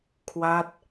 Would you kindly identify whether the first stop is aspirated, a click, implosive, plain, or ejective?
aspirated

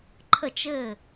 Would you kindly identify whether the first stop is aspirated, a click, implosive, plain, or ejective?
click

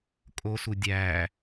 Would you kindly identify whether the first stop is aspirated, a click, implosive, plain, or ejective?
ejective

